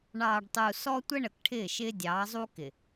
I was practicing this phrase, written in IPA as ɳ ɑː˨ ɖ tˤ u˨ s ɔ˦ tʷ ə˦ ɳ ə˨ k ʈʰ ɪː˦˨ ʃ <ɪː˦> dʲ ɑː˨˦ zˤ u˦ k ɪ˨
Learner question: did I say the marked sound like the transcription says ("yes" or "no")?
yes